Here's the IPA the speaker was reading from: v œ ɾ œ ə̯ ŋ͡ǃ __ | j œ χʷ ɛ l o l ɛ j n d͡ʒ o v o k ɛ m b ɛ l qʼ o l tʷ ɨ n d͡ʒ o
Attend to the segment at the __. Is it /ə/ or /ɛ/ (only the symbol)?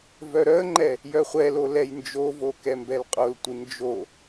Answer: ɛ